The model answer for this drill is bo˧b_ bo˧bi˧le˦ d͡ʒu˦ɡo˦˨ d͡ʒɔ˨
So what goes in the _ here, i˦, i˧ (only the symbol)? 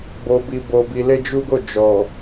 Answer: i˧